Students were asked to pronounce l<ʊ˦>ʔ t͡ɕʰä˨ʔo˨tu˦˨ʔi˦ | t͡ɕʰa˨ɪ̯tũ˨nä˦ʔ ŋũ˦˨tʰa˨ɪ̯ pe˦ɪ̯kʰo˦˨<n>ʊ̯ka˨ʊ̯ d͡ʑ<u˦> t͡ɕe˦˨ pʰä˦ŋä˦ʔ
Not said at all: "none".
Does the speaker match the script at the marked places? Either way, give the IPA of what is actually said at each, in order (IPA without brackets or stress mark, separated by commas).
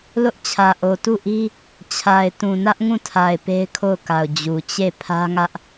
ʊ˦, none, u˨